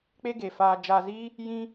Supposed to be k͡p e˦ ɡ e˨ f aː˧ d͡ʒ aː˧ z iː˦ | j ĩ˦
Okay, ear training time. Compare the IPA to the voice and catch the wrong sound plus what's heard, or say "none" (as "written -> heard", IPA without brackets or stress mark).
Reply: none